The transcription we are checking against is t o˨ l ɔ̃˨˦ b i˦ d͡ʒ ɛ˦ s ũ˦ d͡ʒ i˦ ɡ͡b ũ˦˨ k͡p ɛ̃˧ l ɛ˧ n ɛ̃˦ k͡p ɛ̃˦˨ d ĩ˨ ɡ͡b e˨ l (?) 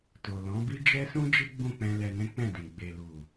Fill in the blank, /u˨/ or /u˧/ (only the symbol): u˨